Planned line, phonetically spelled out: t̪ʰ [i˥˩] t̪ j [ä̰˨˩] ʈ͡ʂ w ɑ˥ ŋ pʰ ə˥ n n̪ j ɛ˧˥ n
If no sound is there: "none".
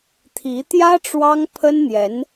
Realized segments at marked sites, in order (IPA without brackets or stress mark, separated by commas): i˧˥, ä˥